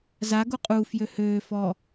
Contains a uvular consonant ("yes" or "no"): yes